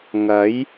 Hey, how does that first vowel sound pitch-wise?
rising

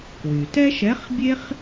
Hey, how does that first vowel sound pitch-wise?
low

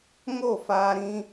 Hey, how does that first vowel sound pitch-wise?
falling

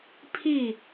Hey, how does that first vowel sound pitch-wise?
falling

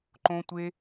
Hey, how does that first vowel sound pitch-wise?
high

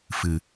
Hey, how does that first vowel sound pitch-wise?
low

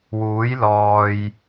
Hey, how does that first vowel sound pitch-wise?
rising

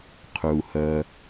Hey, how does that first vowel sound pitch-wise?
low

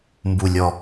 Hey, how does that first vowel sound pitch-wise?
low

